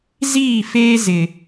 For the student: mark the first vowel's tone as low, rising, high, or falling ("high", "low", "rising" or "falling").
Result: falling